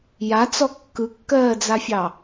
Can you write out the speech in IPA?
j a t͡s ɔ kː ɯ kː ɜː d͡z a fʲ ɑ

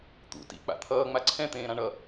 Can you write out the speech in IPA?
t̪ ṵ t ḭ k͡p a̰ t̪ʰ ʌː ŋ͡m a ǀʰ ɛ̃ t̪ ẽː ɾ ã ɳ ʌ

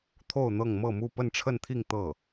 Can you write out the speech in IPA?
t̪ʰ o˥˧ ʊ̯ n̪ ɤ˥˧ ŋ m ɤ˥˧ m u˥˧ p ə˥˧ n ʈ͡ʂʰ ə˥˧ n t̪ʰ i˥˧ ŋ t̪ ɤ˥˩

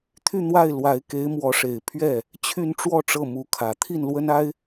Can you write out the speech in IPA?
t̪ʰ y˥˧ n̪ w a˥˩ ɪ̯ l w a˧˥ ɪ̯ k e˧˥ ɪ̯ m w ɔ˧˥ ʂ e˨˩ ɪ̯ pʰ ɥ ɛ˥˩ | t͡ɕʰ y˥˧ n ʈ͡ʂ w ɔ˥˧ ʈ͡ʂ ɤ˥˩ m u˧˥ kʰ ä˨˩ t̪ʰ i˥˩ n l w ə˥ n a˥ ɪ̯

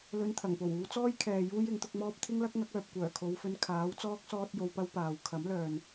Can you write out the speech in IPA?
l ɵ˧ n t̪ʰ ɐ˨˩ ŋ p o˨˩ w uː˨˧ t͡s ɔː˥ j kʰ ɛː˨ j uː˥ j ɪ˨˥ ŋ t̪ ʊ˧ k̚ m ɔː˥ p̚ t̪ʰ ɪ˥ ŋ l ɐ˥ k̚ ŋ ɐ˨˥ k̚ œː˨ p̚ kʷ œː˨˩ kʰ o˨˧ w f ɵ˧ n kʰ aː˨˥ w t͡s ɔː˥ k̚ s ɔː˥ t̚ j o˧ w p ɐ˥ w p aː˨ w kʰ ɐ˨˥ m l œː˨ n

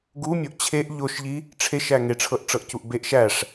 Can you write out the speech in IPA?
ɡ u mʲ o ʔ t͡ɕʰ e ʔ ʎ o ʃ ʎ i | ʈ͡ʂʰ e ʃ æ ŋ e ʈ͡ʂʰ ɤ ʔ ʈ͡ʂ ɤ ʔ c u ʔ b e ʔ ʃ æ ʂ

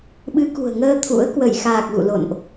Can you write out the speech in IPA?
ɓ ɨ˨˦ k ṳ˨˩ ə̯ ŋ əː˧ t̪ʰ ṵ˧˥ ə̯ k w ə˧˩ j x aː˨˩ k̚ ɣ ṵ˧˨ l o̰˧˨ n ʔ

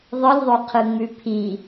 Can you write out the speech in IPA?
ðˤ ɯ lʲ ðˤ o qʰ ɯ ŋ͡m ʉ pʰ i

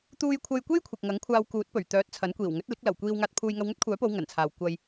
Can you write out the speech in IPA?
t̪ uː˧ j kʷʰ ɐ˧ j kʷ e˥ j kʷʰ ɪ˨ k̚ ŋ ɐ˨˥ ŋ kʷʰ aː˧ w k uː˨˥ t̚ p ɵ˨˩ ɥ t̪ œː˨˥ t̚ t͡sʰ ɐ˨˥ n kʷ iː˨˩ w ŋ ɵ˨˥ t̚ l ɪ˨˥ k̚ l ɐ˨˩ w kʷ iː˧ w ŋ aː˧ t̚ pʰ uː˧ j ŋ ɐ˧ w ŋ ɵ˥ t̚ kʷʰ œː˨˥ p o˨˧ w ŋ ɐ˨˩ n t͡sʰ aː˨ w kʷ ɐ˧ j

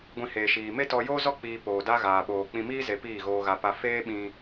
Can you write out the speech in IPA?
ɡʷ ĩ˧ h eː˨ ʃ iː˨ m e˦ t ɔ˧ j oː˦ z ɔ˦ k͡p iː˧ p oː˨ d a˦ ɣ aː˨ ɓ oː˨ k͡p ĩ˧ m iː˦ z e˧ p iː˦˨ ɣ oː˧ ɣ a˧ p a˦ f eː˦ ɓ ĩ˧

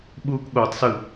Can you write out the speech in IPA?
ɓ uː k ɠ o tˤ s ɯ

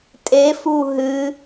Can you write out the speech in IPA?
tʼ e f u ɦ ɨ

